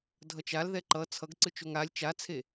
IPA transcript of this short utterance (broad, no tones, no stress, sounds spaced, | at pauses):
dʱ ʌ t͡ʃ a l ð ɛ ǃ ʌ t͡sʰ ʌ ɡ ǀ ɯ t͡ʃ o ŋ a lʲ t͡ʃ a t͡sʰ e